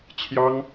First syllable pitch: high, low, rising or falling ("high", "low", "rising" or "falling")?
high